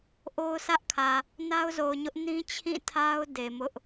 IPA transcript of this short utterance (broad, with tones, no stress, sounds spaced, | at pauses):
ʔ o˦ ʊ̯ sʰ ä˦ ʔ kʰ ä˨ | n a˦ ʊ̯ z o˨ ʊ̯ ɲ ʊ˦ ʔ n ĩ˦ t͡ɕʰ ĩ˦˨ tʰ a˦ ʊ̯ d e˨ m ʊ˦ ʔ